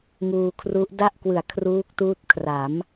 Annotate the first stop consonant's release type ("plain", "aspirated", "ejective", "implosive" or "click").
aspirated